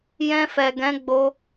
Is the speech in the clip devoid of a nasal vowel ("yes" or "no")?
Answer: no